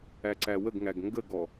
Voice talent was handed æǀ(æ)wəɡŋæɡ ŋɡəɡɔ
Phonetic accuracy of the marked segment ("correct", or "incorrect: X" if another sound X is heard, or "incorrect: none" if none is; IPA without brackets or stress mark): correct